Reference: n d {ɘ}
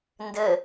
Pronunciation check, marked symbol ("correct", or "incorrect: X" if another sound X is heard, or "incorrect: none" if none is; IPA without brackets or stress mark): correct